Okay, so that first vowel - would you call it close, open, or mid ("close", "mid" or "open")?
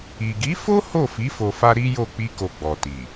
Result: close